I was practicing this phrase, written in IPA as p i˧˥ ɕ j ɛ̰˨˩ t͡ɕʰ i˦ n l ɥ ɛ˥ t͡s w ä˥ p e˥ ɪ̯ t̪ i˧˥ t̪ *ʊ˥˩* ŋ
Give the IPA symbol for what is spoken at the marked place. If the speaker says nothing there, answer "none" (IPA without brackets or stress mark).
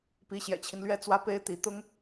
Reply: ʊ˥